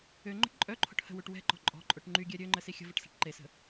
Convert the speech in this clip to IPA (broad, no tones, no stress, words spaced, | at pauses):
ø ŋ͡ǃə̤ʈǃʼœǃʰo̤ʈ hə̤wuʈ wɛ̤ǃɔ̤ ǃʼɔ̤ǃʼoʈ ŋ͡ǃyɡʲɛ ɾʲø ŋ͡ǃəsixʲə̤vəʈ sɛ̤ʈǃesə̤